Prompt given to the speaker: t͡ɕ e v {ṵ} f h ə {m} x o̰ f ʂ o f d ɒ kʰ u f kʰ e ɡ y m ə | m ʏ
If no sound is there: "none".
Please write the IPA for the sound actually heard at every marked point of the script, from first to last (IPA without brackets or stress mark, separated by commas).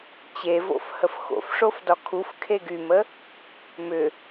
o̰, f